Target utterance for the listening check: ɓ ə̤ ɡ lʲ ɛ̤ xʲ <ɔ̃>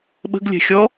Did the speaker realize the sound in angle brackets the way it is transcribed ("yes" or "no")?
no